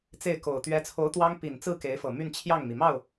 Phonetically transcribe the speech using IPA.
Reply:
t͡se˥˩ɪ̯ko˨˩ʊ̯ t̪ɥɛ˧˥t͡sʰo˧˥ʊ̯t̪wɑ˥ŋ pi˨˩nt͡sɹ̩˥˩ ke˧˥ɪ̯fɤ˨˩ my˥˧n t͡ɕʰjɑ˥˩ŋmi˩ mɑ˥˩ʊ̯

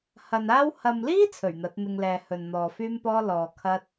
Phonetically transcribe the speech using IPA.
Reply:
hɐ˨naː˥w hɐ˨mliː˥ t͡sʰɵ˨˩ɥn̪ɐ˨˥t̚n̪ɪ˧ŋlɛː˨ hɵ˨nn̪ɔː˨fyː˥mpɔː˥ lɔː˨kʰɐ˥t̚

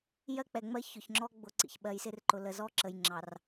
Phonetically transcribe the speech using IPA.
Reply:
jɜ˦k͡pɛ˨ŋ͡mɜ˦ çʊ˨çŋ͡ǁɔ˦ ɡ͡bʊ˨ ǀḭ˨çɓɜ˨jsɪ˦rǃʊ˨ lə˨zɔː˦ ǁə˨jŋ͡ǁɑ˨r

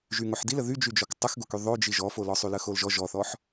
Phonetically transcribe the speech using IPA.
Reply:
ʒyŋoħdilə ðyd͡ʒyd͡ʒɔk tˤəxɡoky ðˤod͡ʒi ʒɔfolɔ sˤyləxolʒɔ ʒɔθɔħ

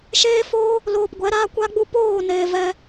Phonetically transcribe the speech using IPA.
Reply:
ʃeː˦foː˦ | loː˧pɡʷɛ˨˦ɾaː˦ kʷa˦ɡ͡bu˦ poː˦˨ neː˧vɛ˦

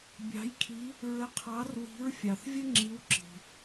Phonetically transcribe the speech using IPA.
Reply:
bʲɑ̤˨˥jkʰi˨˥ | ɹə˨˥qʰɑ˨˥r wi̤˨˥ɹfʲɑ˩θvʲə˥ ŋ͡ǁi˨˥wǁi̤˩

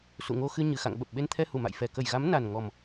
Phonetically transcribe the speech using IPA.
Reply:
sṵ˧˨ŋo˧xɨ˧ ɲɨ˨˩xa̰˧˨ŋɓə˨˩p̚ ɓe˧nt̪ʰɛ˧ hu˧˩ma̰˧˨j fɛ˨˩ kə˧˩jɣa˨˦m na˨˩nŋɔ˨˩m

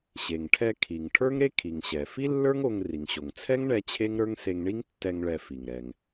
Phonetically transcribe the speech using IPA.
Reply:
ɕe˩ŋʈʰɛ˧ kʰi˩ŋ ʈʰə˞˥ŋɾe˥ kʰi˩ŋɕɛ˩ fi˥lːə˞˥ŋ o˧ŋ ri˩ŋɕo˩ŋ t͡sʰɛ˥ŋɳɛ˧ t͡ɕʰe˥ŋɾə˞˥ŋ se˧ŋɳi˥ŋtːɛ˧ŋ ɭɛ˧fi˩ŋ ɾɛ˩ŋ

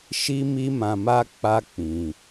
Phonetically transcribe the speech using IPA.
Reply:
ʃi˦mi˦mã˧ma˦ k͡pa˦k͡pĩ˧

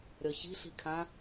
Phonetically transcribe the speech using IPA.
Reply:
ɾʲɔçi̤ɬi̤kʰã

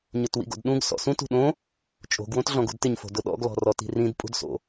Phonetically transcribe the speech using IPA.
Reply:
ɲʊtwḭɡo̰dɗũɡ sɔ̰sũt ṳɗõ | t͡ʃʼo̤ɡ wõtɮɔ̃ɡṳdtɪɲ fo̤dʊɗɔ̰ɡ lɔ̤rɔti̤rĩd pʼṳdso̰

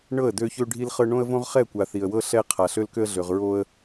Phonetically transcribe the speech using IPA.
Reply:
ɳɤ˦˨ə̯dø˦çø˦ ɖʱi˦lχɤ˦ ɳõ˦ə̯võ˦ʁ χɛ˦˨kʷa˨ θi˨ə̯wɤ˦ ɬɛ˦ qʰa˨ɬø˦lkø˦ə̯ɮø˨ʁ ɹo˦ə̯

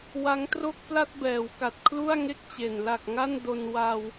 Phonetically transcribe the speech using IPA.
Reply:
wa˦˥ŋ tro˥˩k̚pla˥˩t̚ bɛː˩˦wka˨˩t̚ kʰlu˥˩a̯ŋe˥˩k̚t͡ɕe˨˩n la˨˩k̚ ŋa˥˩n do˧n wa˧w

